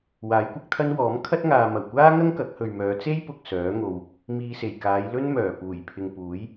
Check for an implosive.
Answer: absent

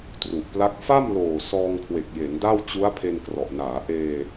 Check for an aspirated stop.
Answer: present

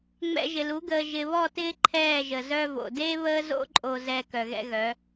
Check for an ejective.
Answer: present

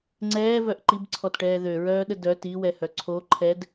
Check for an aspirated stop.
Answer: present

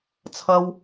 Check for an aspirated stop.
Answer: present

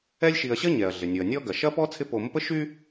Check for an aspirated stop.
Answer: present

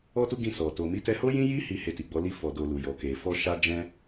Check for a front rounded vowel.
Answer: absent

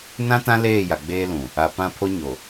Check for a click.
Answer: absent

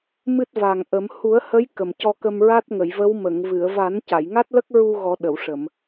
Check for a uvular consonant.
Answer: absent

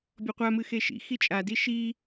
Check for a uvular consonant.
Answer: present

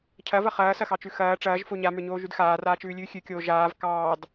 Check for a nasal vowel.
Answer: absent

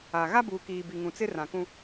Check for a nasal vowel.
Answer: present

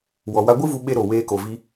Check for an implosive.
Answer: present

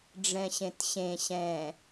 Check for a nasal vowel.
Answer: present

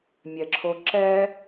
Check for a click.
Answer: present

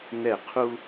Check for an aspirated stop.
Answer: present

